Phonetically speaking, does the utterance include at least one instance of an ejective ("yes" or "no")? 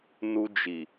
no